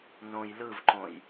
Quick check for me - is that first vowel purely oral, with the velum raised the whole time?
no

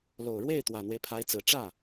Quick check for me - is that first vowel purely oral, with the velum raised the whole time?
yes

